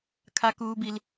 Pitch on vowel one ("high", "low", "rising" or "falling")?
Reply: high